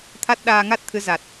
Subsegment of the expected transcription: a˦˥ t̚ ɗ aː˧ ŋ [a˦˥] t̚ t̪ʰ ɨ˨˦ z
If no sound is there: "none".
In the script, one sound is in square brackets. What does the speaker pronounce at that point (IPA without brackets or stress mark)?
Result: a˦˥